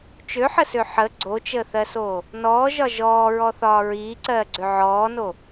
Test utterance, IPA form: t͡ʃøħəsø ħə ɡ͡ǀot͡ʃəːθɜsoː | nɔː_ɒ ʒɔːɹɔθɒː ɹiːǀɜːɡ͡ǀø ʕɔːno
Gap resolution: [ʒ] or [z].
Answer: ʒ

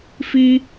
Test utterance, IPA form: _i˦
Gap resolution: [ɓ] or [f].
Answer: f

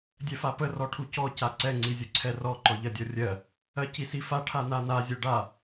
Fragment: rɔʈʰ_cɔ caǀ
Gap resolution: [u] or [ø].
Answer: u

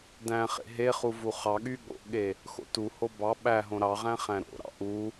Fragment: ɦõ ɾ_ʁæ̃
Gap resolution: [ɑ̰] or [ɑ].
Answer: ɑ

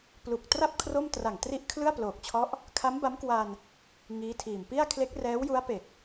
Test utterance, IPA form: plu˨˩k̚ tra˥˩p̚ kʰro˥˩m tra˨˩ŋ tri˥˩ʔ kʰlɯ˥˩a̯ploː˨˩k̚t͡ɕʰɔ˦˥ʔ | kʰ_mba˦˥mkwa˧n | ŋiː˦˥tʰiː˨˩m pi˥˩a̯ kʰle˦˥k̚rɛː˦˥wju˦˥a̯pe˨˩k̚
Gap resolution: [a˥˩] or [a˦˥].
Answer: a˦˥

